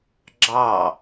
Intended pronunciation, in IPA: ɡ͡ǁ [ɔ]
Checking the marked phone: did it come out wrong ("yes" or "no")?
yes